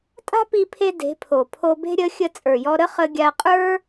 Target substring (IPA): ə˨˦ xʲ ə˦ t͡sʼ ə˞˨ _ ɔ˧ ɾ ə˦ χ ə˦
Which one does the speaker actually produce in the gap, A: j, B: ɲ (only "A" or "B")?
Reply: A